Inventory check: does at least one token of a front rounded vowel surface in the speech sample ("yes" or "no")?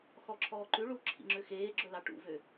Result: yes